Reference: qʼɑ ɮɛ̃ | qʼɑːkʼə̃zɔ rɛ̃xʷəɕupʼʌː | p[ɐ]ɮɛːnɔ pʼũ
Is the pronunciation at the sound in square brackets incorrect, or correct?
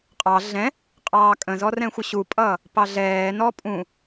incorrect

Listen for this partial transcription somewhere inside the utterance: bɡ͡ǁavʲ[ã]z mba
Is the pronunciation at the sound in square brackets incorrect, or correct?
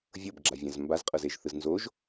correct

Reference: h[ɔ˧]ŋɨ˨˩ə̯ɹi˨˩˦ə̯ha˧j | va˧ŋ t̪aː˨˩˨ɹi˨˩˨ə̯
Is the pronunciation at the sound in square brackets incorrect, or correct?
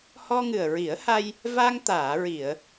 correct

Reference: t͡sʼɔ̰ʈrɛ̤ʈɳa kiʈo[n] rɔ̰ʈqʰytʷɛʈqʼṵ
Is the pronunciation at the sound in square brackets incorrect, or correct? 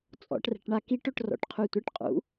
incorrect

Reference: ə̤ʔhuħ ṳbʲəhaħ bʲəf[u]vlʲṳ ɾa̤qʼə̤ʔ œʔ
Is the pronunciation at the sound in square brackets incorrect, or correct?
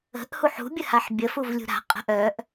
correct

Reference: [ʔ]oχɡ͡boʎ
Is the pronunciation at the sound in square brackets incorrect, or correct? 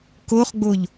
incorrect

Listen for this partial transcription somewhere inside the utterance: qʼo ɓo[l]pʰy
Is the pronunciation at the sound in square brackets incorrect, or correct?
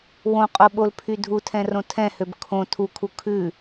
correct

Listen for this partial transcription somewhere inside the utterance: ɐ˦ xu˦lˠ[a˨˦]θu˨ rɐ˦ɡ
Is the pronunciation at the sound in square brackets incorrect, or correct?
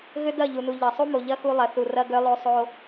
incorrect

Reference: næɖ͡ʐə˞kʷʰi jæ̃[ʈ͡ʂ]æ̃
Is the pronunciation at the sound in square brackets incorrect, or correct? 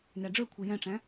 correct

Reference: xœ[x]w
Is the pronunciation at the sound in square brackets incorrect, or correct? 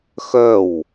incorrect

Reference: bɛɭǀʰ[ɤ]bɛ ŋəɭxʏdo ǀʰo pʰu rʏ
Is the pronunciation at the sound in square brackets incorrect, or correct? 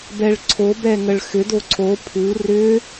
incorrect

